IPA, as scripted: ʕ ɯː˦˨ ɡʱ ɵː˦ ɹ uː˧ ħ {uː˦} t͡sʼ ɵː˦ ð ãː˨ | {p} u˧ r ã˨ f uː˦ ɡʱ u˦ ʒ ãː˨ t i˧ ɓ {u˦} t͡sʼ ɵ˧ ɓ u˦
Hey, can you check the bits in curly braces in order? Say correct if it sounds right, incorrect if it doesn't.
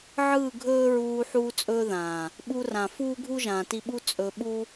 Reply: correct, incorrect, correct

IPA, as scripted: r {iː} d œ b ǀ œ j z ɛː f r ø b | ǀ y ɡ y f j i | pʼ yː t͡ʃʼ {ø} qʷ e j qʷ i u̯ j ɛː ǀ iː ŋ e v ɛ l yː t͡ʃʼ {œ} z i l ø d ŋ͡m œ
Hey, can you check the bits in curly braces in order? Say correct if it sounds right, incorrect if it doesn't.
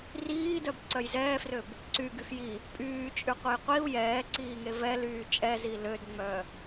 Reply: correct, incorrect, incorrect

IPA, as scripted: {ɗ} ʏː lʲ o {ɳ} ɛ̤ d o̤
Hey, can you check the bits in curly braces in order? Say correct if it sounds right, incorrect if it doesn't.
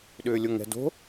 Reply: correct, incorrect

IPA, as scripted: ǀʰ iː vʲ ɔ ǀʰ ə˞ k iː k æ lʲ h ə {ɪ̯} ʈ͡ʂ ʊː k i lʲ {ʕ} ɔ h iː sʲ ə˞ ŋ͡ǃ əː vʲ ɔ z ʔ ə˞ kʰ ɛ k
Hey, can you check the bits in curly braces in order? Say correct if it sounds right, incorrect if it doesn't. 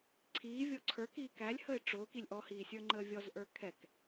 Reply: correct, incorrect

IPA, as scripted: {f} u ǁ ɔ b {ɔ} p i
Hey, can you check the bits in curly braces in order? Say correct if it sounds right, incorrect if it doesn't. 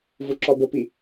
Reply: incorrect, incorrect

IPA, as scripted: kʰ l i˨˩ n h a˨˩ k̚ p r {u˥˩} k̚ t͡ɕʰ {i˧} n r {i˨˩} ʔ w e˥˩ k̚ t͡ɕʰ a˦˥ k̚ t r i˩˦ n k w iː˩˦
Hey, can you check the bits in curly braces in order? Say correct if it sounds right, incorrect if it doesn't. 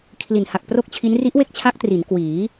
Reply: incorrect, incorrect, incorrect

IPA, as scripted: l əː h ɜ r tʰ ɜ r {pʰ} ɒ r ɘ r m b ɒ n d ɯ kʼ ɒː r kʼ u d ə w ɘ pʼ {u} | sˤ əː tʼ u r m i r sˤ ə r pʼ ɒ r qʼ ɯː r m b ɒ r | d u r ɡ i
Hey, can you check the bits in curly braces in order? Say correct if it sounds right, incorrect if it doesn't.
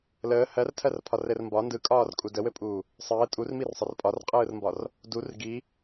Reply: correct, incorrect

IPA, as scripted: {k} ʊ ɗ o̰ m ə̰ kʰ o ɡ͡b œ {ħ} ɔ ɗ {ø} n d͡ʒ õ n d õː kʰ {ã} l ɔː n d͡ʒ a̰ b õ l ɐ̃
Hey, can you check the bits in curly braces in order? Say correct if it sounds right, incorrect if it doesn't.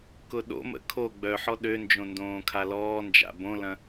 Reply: correct, correct, correct, incorrect

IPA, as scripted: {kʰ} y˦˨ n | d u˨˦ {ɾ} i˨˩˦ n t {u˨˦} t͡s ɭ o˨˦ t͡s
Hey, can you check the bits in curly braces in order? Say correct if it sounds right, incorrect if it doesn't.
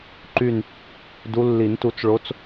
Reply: incorrect, incorrect, correct

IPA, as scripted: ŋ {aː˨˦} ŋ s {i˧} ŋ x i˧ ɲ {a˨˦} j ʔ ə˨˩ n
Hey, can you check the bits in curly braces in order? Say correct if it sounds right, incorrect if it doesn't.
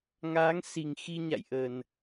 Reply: correct, incorrect, incorrect

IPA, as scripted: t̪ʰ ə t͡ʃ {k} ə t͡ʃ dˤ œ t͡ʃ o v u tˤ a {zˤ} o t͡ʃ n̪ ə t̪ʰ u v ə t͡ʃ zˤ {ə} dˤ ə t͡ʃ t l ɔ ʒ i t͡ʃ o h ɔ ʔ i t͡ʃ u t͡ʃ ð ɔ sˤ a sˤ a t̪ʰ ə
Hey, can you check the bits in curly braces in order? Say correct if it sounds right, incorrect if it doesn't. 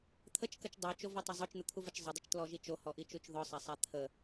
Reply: correct, correct, correct

